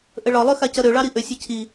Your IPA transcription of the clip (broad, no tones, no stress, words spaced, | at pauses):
ʔəɭɒlˠø xacʌɾøɭɑ ɾiʔøsʲə cʰi